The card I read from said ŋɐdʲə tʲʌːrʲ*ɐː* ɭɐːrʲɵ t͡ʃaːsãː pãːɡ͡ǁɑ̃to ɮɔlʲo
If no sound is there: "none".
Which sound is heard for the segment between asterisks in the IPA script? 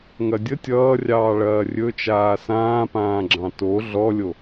ɑː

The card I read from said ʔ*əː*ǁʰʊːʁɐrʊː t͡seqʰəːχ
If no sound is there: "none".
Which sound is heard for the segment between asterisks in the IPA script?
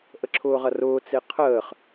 ə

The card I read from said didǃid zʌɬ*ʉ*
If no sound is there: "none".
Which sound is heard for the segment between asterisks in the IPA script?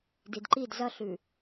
ʉ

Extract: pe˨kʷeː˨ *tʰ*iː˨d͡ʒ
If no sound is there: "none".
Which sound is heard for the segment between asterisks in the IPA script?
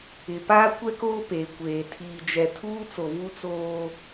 tʰ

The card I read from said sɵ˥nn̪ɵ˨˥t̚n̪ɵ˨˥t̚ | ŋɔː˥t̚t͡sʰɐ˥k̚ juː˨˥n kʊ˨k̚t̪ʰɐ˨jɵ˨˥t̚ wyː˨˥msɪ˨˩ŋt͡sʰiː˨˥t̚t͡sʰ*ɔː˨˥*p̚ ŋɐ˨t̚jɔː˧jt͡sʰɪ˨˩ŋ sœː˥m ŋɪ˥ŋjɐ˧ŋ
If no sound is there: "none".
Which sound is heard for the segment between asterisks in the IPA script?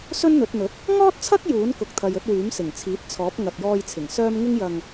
ɔː˨˥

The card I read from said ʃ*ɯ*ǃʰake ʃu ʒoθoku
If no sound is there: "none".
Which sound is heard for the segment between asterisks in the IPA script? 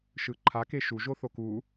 ɯ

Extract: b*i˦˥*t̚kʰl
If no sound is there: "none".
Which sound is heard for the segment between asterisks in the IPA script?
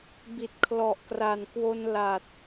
i˨˩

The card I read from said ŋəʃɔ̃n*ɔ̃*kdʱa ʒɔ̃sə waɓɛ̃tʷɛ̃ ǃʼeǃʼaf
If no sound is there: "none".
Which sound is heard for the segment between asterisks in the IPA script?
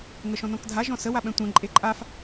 ɔ̃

